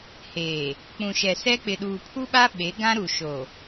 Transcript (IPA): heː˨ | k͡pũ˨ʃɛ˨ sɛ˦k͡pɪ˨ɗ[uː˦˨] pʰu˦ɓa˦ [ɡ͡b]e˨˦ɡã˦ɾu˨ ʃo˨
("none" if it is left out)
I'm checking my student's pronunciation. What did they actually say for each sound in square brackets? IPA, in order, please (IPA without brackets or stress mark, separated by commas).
uː˨, ɓ